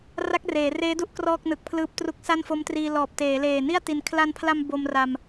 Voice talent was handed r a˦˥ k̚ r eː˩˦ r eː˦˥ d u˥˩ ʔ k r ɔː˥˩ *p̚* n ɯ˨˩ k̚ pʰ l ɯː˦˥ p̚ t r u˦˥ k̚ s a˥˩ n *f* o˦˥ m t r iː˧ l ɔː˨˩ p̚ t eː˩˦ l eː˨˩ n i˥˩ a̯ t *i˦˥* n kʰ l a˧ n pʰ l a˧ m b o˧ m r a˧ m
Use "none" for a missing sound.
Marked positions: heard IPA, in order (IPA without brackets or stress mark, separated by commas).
k̚, f, i˧